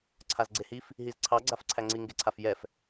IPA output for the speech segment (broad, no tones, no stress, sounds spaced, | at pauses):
ǀʰ a z ɡ͡ǀ e h i f | ɦ i z ǀʰ ɑ ɡ͡ǀ a f ǀʰ æ ŋ͡ǀ i ŋ ɡ e ǀʰ a f j ɛ f